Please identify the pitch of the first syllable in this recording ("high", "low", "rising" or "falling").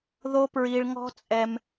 high